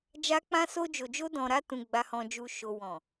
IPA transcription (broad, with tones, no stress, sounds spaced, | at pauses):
d͡ʒ a˧ k͡p ã˧ s o˧ d͡ʒ o˨ d͡ʒ o˧ d ɔ̃˨ ɾ a˧ t ũ˨ ɡ͡b a˨ h ɔ̃˨ d͡ʒ u˨ ʃ o˨ w ɔ̃˨